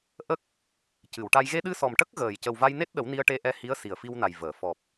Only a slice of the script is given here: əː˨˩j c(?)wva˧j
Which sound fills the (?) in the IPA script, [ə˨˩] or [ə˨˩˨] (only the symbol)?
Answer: ə˨˩